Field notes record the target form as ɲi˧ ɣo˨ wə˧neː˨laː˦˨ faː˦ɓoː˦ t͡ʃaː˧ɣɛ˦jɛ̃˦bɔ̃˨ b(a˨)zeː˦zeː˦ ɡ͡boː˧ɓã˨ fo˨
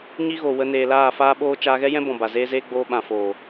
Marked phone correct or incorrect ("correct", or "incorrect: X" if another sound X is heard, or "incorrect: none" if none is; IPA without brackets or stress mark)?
correct